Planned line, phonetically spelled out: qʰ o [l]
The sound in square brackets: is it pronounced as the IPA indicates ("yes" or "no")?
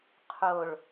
no